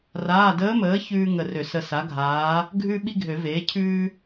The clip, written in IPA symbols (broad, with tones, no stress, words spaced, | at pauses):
raː˩˧˩dəː˧˥məː˩˥ çʉː˥ŋə˧˩ rø˨˩˦sə˧˩ sa˩˥ɡʱaː˩˥ | ɡʱʉ˥ɓi˥ɡʱø˨˩˦veː˩˥ cʰʉː˥